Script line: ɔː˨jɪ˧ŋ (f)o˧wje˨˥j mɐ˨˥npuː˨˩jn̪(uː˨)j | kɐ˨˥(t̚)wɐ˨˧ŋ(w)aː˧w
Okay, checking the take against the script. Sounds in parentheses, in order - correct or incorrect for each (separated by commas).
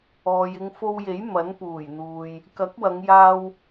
correct, correct, incorrect, incorrect